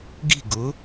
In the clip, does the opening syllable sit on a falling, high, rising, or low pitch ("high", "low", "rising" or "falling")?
falling